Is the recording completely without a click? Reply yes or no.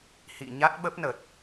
yes